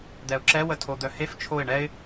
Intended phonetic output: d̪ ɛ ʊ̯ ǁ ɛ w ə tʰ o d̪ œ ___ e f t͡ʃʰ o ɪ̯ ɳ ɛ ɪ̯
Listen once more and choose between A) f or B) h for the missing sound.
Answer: B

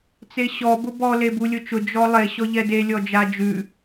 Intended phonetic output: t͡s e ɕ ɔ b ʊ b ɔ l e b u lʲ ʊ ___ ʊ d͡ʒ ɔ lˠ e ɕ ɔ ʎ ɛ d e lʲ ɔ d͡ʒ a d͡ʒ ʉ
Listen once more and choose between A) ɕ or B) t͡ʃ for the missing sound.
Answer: B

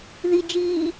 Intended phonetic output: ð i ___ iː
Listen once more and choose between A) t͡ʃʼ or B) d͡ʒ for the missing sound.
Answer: B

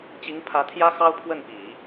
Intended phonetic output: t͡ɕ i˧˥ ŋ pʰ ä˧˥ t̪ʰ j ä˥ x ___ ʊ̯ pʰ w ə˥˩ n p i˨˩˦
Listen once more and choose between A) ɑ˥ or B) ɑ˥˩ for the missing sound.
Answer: A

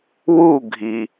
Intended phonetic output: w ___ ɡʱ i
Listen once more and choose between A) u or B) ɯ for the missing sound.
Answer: A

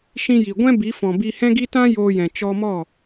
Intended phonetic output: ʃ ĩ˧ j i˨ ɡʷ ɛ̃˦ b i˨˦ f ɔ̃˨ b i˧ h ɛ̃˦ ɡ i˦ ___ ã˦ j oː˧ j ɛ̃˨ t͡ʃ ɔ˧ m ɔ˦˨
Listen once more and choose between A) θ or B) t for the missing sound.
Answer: B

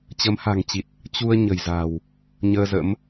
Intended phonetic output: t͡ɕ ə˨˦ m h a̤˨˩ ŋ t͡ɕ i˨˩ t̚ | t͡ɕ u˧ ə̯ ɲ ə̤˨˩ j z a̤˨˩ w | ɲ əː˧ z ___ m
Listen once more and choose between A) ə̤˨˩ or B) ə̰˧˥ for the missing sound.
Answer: B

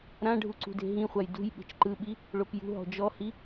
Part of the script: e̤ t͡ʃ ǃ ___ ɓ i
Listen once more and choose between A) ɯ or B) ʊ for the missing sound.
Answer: A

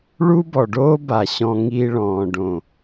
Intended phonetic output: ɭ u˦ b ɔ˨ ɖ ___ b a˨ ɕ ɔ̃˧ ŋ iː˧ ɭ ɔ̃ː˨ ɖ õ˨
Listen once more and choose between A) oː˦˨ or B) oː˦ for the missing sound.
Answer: B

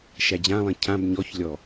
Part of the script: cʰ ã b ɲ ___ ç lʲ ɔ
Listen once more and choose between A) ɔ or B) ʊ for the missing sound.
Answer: A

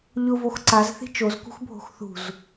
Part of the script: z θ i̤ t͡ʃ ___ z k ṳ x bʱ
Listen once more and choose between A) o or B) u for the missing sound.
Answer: A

